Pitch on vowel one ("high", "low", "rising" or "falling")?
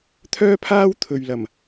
high